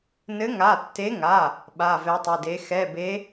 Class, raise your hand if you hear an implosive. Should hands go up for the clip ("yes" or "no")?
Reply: yes